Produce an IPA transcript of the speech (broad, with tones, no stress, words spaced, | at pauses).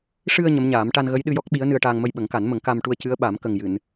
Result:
ʂɨ˧ə̯ ɲə˧˥mɲaː˨˩˦m ʈa˧nɣə˧˥jɗɨ˧jɔ˦˥k̚ ɓi˧˥ə̯nɨ˧ə̯ʈaː˧ŋ mə˧jɓə˨˩˦ŋka˨˩˦nmə˨˩˦ŋ ka˧m ʈu˧ə̯cɨ˧˥ə̯ɓa˨˩˦m kə˨˩ŋjɨ˨˩˨n